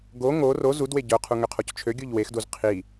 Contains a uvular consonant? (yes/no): yes